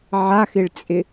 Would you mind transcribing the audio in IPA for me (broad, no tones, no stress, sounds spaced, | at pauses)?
ʕ a x ɪ ɭ t͡sʼ ɪ